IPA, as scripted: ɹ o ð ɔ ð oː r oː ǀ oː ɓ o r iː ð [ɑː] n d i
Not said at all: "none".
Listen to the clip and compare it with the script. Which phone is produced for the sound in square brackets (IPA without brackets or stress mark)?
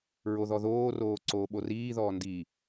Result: ɔː